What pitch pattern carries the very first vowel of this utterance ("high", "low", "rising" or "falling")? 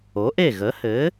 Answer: rising